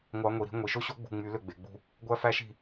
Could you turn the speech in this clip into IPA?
ŋʷ ɑ˧˥ ŋʷ i˩˧ ɾ i̤˧˥ ŋʷ i˩˧ ʃ o˥ ɕ o˥ ɡ͡b ṳ˥˨ ŋ͡m y˧˥ l ø˥˨ ɡ͡b e˩˧ ɡ͡b ṳ˥˨ | ɡʷ æ˥ f æ˥ ʃ i̤˥˨

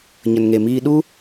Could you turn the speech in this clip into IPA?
ɲ ə˨ n ŋ e˨ m iː˧ ɗ u˦

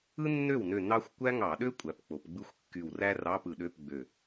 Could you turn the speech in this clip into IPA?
ɯ˥ nː ø˥˩ w n ø˧˩ n ɑ˥ xʷ kʷ æ˥ ŋ ɑ˧˩˧ ɗ ø˥ kʷʼ æ˩˧ p k͡p o˩˧ p ɡ͡b ɯ˥ xʷ kː y˧˩ w r æ˥ r ɑ˧˥˧ p ɯ˧˩˧ ɗ ø˧˥˧ p ɡ͡b ø˧˩

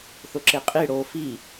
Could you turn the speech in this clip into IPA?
θ ʊ ǁ e qʼ i ɽ o f i

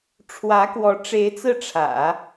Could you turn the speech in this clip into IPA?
ʈ͡ʂʰ w ä˧˥ k w ɔ˧˥ ʈ͡ʂ e˧˥ ɪ̯ t͡s ɹ̩˥˩ ʈ͡ʂʰ ä̰˨˩˦

